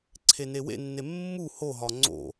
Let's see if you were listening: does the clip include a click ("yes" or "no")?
yes